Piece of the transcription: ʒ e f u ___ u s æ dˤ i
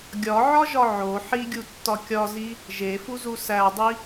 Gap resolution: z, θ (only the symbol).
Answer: z